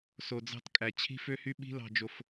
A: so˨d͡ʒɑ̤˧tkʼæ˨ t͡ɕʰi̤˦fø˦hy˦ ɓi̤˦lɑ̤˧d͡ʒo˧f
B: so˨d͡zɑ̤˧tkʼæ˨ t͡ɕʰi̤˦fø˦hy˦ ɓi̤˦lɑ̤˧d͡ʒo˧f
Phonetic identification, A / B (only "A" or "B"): B